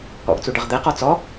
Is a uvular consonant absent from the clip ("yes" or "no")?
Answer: no